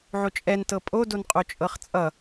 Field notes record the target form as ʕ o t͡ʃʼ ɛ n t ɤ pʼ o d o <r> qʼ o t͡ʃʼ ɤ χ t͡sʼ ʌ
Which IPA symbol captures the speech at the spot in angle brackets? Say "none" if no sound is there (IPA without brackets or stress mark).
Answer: n